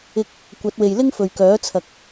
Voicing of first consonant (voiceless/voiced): voiceless